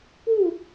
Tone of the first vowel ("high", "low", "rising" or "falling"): falling